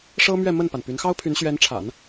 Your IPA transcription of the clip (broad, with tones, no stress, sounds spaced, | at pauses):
ʂ ɤ˥ m ɥ ɛ˥˧ m ə˥˩ n p a˩ n p y˧˥ n x ɑ˥ ʊ̯ pʰ y˧˥ n ɕ ɥ ɛ˧˥ n ʈ͡ʂʰ a̰˨˩˦ n